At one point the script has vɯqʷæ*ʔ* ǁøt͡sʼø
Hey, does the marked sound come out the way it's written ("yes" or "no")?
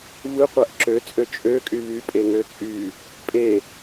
yes